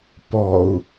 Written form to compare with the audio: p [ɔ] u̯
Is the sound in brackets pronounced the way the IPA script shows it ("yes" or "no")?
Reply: yes